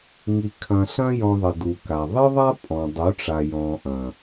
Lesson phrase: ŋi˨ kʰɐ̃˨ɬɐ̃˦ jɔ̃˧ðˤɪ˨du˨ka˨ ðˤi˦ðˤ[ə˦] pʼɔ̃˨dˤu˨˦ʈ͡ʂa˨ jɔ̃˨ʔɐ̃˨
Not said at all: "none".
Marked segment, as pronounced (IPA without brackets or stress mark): a˦